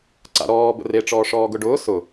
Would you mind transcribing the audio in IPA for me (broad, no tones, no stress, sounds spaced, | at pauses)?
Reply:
ǀ a̰ ɾ ɔː b ə̰ r e ʈ͡ʂ ɔː ʂ ɔː ɡ ʊ ɖ ʊː s ʊ